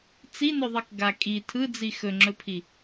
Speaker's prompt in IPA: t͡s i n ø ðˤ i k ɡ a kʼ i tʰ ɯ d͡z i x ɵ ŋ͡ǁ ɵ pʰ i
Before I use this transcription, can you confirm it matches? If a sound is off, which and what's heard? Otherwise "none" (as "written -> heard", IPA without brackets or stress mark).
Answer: ø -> ɵ